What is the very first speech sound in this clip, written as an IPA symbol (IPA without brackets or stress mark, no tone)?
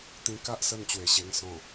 t̪